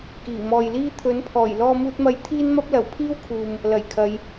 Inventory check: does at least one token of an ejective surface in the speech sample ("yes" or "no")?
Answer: no